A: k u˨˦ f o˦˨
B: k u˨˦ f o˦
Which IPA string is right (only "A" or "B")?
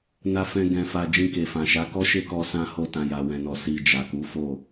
A